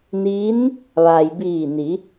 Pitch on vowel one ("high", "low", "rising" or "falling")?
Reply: rising